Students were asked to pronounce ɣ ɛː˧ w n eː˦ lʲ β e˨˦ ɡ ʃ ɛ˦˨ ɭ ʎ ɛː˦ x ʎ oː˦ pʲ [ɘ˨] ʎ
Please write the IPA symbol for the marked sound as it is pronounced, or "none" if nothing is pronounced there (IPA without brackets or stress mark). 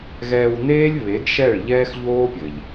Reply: ɘ˨